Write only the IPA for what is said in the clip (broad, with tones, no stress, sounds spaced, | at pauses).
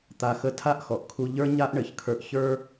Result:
t̪ a˧ x ə˥ tʰ a˥ ʔ x ɔ˩ ʔ kʰ u˧ ʎ ə˞˥ ɲ a˥ ʔ ɳ ɘ˩ ç kʰ ə˞˧ ʔ ç ə˞˥